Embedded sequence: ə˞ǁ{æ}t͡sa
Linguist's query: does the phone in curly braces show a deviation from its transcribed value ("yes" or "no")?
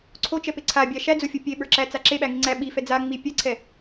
no